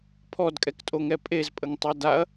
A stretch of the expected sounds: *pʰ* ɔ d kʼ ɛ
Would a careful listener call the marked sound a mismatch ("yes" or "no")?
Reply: no